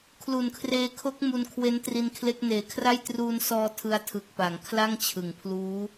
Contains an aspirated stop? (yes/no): yes